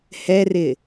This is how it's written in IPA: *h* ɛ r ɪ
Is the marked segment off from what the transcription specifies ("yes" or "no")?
no